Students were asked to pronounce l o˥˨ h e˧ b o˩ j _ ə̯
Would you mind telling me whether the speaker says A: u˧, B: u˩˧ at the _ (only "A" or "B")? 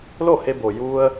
A